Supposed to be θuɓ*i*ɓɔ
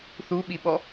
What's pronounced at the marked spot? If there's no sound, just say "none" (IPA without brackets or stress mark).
i